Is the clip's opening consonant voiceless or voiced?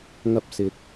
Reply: voiced